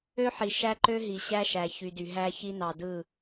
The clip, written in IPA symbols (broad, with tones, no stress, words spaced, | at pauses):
ø˦ħi˨ ʃæ˦ǃø˦ɦi˨ ɕæ˦ʃæ˨çy˨dy˨ ɦæ˦çi˦nɑ˨dɯ˦˨